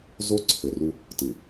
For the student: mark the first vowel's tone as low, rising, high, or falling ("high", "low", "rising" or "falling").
high